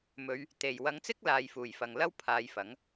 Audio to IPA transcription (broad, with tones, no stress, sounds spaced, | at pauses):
m ɵ˨˧ ɥ | t̪ e˨˩ j w ɐ˨˧ ŋ t͡s ɪ˥ k̚ l aː˨ j f uː˨˩ j f ɐ˨ ŋ l ɐ˥ w pʰ aː˨˧ j f ɐ˨˥ ŋ